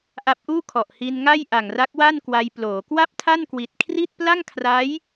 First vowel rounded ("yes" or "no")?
no